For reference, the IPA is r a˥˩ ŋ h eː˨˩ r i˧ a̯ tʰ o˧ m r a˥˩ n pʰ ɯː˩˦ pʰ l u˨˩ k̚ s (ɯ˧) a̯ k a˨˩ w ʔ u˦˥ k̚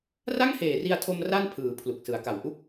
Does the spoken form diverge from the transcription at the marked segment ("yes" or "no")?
yes